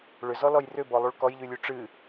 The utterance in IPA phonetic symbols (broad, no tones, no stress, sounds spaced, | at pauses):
ɭ ʏ z ɔ l ɔ j r ʏ b ɔ lˠ u ɭ k ɔ j ʎ ʉ lʲ ʉ ʈ͡ʂ ɨ